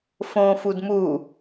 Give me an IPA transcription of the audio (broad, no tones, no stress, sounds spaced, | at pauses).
f õ f u d m u